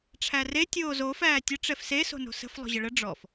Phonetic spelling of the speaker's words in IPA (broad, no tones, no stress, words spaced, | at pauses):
ʈ͡ʂʰære tʲoːzo fæːtʲə ʈ͡ʂɛfse so̤no̤sə̤f lˠo̤ʑəɭə ɖ͡ʐɔf